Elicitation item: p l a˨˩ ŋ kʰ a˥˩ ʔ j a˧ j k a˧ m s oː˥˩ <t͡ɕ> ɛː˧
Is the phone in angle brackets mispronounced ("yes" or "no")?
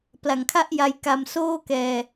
yes